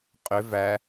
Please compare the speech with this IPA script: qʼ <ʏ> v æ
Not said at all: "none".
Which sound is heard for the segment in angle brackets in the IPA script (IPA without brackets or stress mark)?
ʏ